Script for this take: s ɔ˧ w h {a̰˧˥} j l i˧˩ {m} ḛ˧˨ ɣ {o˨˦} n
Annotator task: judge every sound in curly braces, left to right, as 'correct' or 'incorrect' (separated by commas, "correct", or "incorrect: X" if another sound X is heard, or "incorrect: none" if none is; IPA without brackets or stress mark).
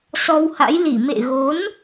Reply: correct, correct, correct